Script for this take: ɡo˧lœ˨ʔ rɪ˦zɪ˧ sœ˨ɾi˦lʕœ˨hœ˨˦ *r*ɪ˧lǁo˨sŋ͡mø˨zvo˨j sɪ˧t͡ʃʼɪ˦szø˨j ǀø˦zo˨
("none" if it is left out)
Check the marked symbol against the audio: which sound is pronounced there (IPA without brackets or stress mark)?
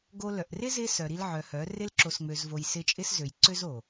r